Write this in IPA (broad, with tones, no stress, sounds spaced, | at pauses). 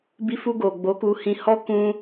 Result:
b i˧ f u˧ ɡ o˨ ɡ͡b o˨˦ k u˧ h ĩ˧ h ɔ˦ k ũ˧